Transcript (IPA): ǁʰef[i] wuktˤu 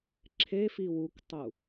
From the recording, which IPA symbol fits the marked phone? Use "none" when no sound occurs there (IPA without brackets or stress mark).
i